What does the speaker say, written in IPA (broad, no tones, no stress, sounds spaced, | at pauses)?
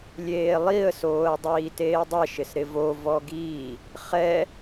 lʲ eː lˠ i ə̯ s oː ə̯ dˤ iː t eː dˤ e ʃ ɪ s ɾ ɪ v o v ɔ ɡ iː | χ ɛ